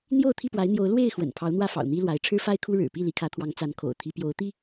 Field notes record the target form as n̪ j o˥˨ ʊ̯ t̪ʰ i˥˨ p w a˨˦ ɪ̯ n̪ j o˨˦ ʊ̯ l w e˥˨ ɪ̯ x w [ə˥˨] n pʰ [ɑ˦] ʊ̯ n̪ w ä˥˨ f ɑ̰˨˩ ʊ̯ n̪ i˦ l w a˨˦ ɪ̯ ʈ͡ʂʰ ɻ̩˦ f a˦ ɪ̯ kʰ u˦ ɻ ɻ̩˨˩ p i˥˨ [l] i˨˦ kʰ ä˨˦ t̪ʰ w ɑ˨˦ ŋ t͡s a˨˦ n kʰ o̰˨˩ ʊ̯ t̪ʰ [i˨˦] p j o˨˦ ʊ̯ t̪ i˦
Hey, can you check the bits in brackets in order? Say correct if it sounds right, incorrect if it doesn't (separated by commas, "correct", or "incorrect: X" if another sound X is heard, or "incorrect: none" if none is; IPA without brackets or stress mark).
incorrect: ə̰˨˩, incorrect: ɑ˨˦, correct, correct